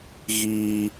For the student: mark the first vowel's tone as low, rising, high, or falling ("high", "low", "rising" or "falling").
high